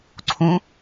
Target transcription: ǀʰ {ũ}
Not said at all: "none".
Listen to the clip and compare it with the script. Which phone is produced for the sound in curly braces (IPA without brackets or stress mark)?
ũ